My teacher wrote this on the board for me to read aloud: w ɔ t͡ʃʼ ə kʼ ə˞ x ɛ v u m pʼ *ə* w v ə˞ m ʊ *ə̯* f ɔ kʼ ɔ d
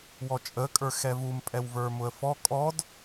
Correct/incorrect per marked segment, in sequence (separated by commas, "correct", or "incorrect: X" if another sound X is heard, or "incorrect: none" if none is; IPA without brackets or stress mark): incorrect: ɛ, correct